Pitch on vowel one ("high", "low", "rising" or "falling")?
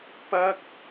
high